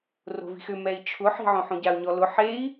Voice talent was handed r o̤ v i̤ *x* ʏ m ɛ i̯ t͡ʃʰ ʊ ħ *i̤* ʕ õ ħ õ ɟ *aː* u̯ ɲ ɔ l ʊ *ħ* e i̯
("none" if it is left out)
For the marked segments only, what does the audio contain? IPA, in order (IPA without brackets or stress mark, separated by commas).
x, i̤, a, ħ